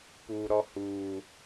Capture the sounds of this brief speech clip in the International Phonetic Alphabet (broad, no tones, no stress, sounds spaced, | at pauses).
p u ɾ ɔ h uː